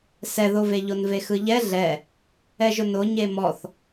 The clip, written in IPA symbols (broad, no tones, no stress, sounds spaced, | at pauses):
s ɛ ð o v e ʎ o n v e x ɯ ʎ ɛ ɮ ɛ | ɛ ʒ ʊ n o ɲ e m ɔ θ